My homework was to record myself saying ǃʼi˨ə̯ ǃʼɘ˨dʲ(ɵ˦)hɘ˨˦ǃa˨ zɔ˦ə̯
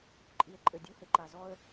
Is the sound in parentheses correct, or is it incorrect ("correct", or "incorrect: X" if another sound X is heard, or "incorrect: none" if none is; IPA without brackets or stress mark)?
incorrect: o˦